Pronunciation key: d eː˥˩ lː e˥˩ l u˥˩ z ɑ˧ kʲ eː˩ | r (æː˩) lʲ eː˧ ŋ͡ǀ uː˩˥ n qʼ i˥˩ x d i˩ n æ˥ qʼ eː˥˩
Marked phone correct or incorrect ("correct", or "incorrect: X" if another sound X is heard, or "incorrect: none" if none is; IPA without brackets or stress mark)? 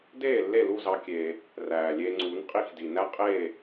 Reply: correct